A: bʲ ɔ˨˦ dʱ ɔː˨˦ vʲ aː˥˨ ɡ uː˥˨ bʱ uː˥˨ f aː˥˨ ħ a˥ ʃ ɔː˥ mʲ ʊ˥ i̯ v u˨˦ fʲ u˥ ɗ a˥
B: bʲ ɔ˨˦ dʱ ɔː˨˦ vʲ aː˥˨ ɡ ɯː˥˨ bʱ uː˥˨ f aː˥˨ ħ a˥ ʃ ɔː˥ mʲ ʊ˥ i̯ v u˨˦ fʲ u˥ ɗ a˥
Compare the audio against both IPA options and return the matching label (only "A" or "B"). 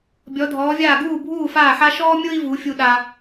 A